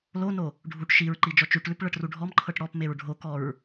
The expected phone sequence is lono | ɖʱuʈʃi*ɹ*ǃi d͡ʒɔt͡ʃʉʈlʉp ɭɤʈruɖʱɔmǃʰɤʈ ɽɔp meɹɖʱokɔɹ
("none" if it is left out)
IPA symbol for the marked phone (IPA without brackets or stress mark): ɹ